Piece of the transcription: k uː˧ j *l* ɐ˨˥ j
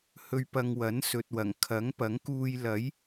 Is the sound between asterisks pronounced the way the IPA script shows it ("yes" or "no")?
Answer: yes